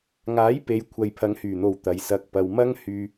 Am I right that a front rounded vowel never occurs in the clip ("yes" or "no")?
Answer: no